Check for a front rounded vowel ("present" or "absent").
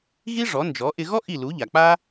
absent